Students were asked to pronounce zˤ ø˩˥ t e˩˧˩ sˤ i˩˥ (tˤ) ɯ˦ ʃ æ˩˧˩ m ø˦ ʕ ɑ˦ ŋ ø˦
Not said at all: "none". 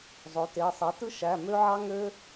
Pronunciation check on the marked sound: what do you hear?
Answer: t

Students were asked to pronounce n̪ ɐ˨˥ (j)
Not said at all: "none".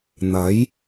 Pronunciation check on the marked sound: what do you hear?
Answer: j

